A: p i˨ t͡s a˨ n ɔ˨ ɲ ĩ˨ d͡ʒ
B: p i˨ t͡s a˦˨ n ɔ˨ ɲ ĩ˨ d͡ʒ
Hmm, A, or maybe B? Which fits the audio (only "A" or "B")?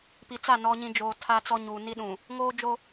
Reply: B